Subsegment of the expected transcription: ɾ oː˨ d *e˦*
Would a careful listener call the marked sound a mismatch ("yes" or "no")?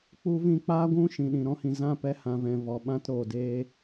yes